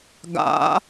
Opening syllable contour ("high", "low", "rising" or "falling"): rising